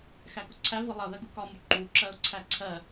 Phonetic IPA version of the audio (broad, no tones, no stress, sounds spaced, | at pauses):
x æ k ʊ ǀʰ æ v ʌ lˠ ʌ ð ɜ ɡ u k ɒ m u ǃ u ǁ ɜ ʊ̯ ǀʰ æ ǀʰ ɜ